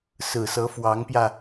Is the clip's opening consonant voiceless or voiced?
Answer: voiceless